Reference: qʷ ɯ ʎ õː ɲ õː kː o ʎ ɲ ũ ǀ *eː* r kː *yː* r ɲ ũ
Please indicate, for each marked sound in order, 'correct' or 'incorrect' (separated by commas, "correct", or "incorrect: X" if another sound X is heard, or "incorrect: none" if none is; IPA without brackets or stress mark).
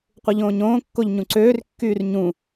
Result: incorrect: øː, correct